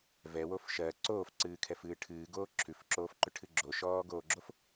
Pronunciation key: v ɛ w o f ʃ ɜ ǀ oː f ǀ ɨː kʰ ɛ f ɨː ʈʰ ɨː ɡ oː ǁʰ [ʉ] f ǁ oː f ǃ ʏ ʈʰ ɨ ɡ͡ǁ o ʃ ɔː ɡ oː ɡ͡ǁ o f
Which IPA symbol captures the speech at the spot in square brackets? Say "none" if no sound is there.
ʉ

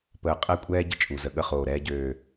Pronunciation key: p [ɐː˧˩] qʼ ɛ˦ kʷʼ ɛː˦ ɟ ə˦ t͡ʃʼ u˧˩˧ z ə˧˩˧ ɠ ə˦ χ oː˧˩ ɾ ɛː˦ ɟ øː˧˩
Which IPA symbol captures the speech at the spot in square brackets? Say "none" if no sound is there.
əː˧˩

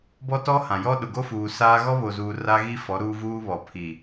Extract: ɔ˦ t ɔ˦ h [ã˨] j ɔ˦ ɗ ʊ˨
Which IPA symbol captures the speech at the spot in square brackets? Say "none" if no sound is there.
ã˨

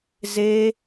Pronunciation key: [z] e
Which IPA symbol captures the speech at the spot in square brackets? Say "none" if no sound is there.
z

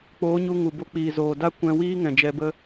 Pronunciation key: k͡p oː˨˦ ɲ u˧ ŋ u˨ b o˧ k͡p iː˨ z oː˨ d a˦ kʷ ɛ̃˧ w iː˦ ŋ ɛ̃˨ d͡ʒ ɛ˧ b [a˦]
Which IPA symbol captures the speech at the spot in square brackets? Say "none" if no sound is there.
ə˦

